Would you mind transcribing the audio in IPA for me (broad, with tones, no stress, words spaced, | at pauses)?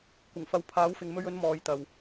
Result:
kʷɪ˨˩ŋfɐ˨˧w pʰaː˨˥wfɪ˨ŋ mɵ˧ɥɵ˨˧n mɔː˨jt̪ɐ˨w